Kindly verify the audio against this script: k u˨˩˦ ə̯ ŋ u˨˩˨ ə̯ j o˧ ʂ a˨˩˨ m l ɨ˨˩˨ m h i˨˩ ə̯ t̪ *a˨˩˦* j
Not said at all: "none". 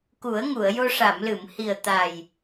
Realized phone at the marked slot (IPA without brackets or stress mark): a˨˩